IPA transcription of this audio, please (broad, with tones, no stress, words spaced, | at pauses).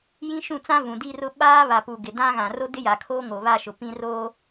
jĩ˦ʃũ˦˨t͡sã˦ vũ˨di˦rʊ˦ ɓaː˦ βa˨pu˨ ɡɪ˨dã˦ɣã˨ ro˦dɪ˦ja˨kʰoː˦ ŋo˨βa˦˨ʃʊ˨ pĩ˦ roː˦